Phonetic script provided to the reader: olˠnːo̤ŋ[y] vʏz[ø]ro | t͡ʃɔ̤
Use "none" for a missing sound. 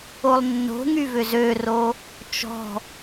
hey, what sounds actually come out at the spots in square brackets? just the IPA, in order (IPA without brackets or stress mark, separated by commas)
y, ø